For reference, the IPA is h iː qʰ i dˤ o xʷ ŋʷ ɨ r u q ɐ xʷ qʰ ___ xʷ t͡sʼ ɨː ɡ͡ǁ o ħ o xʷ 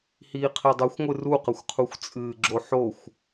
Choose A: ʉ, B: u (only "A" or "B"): B